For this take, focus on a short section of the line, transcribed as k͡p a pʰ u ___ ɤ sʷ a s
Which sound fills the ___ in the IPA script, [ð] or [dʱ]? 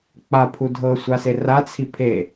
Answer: dʱ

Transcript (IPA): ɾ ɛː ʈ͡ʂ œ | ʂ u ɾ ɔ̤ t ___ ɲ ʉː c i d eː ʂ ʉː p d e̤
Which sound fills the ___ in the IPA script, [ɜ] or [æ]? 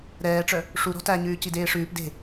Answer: æ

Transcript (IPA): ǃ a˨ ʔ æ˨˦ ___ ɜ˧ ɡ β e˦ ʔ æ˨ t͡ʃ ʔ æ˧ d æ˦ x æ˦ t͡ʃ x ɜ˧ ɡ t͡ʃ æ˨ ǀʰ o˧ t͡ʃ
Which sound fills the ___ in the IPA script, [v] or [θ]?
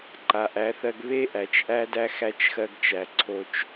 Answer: θ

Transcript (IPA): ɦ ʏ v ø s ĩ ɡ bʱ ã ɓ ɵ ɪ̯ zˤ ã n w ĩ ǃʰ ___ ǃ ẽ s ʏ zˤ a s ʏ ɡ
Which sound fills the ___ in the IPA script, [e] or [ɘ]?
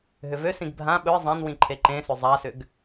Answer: e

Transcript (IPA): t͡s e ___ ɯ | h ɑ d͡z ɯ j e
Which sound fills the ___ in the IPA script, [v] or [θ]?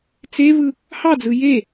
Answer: v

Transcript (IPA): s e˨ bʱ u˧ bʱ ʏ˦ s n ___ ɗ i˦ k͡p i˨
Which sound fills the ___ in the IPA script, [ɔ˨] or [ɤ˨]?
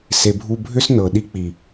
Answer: ɤ˨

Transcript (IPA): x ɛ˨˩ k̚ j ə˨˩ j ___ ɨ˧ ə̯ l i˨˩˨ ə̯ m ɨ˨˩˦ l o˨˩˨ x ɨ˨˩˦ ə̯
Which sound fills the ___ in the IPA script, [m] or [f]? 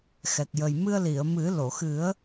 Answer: m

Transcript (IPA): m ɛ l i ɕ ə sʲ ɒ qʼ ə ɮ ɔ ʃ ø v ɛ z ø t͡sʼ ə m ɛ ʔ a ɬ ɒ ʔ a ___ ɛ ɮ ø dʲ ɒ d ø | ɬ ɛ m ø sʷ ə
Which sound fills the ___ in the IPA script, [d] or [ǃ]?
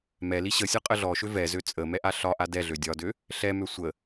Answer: d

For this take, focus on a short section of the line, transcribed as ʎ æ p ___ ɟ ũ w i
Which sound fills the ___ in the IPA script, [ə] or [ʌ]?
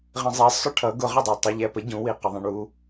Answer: ə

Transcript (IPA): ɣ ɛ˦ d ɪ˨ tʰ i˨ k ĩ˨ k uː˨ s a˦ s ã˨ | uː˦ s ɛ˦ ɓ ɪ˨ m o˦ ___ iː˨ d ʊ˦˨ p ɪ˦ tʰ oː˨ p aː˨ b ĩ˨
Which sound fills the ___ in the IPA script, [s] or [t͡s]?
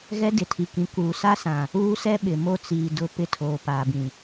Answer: t͡s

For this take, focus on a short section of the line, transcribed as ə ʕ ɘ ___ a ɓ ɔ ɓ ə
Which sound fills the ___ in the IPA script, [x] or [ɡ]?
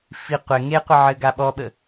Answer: ɡ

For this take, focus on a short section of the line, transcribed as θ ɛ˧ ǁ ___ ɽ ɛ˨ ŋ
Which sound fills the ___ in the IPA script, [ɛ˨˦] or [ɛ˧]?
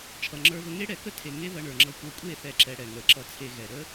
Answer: ɛ˧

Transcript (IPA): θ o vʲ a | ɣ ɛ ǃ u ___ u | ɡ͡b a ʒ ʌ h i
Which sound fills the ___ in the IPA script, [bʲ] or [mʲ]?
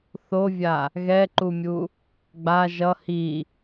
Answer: mʲ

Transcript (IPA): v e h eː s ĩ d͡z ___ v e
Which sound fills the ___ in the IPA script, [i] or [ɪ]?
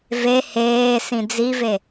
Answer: i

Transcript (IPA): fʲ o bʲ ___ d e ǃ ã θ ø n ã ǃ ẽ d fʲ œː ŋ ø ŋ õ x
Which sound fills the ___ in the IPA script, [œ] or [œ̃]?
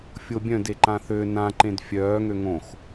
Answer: œ̃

